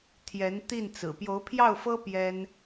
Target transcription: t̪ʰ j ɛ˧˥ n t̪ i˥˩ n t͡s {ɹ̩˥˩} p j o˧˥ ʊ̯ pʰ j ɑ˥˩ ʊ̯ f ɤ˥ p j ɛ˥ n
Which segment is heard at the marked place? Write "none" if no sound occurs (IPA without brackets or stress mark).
ɹ̩˨˩